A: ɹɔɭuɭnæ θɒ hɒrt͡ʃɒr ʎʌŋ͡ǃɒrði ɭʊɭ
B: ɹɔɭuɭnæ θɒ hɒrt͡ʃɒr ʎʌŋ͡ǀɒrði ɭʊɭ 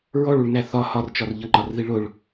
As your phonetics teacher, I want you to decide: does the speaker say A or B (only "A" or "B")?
A